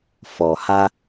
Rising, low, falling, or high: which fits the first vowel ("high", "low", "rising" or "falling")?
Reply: low